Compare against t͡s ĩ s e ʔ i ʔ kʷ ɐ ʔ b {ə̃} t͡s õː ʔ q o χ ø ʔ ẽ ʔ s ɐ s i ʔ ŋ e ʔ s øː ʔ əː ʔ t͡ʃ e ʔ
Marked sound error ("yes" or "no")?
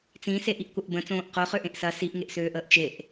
no